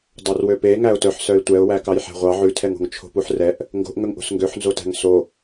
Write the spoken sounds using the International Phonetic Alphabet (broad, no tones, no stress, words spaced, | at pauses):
dˤørwøpe ŋæʊ̯tœħ sœɪ̯tʷɛʊ̯ wækɑjħæ̤ʁʷɑ ʕʉtʰɛŋo̤ŋ t͡ʃʰo̤puħrɛʔ | ŋɡo̤ʔŋɵŋʔo̤s ŋɡøħnzotæ̤ŋ so